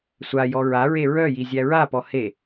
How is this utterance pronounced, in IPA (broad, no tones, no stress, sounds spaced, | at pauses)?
sʷ a j ɔ ɹ a ɹ e ɹ œ j i zʲ æ ɹ a p ɔ h e